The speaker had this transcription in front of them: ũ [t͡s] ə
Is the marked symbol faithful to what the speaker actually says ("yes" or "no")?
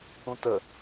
no